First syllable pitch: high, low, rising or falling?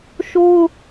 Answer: high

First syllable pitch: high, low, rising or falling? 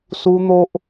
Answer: high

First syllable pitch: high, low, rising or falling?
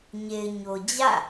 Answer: low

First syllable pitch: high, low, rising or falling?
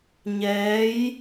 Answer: rising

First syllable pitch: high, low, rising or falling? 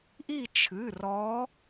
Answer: falling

